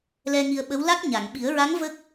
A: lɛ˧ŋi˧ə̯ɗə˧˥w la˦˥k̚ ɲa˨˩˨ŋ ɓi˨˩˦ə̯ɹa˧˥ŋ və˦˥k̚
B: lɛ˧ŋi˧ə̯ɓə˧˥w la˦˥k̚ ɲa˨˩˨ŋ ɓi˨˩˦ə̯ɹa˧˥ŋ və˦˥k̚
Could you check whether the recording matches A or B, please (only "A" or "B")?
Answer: B